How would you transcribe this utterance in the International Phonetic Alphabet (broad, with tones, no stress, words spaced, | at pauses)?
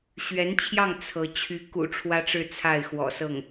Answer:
ɕɥɛ˧˥nt͡ɕʰjɑ˥˩ŋ t͡sʰɤ˧˥ t͡ɕʰy˧˥ kṵ˨˩ ʈ͡ʂʰwä˥ʈ͡ʂɻ̩˥˧ t͡sʰa˥˩ɪ̯xwɔ̰˨˩sɤ˥˩ŋ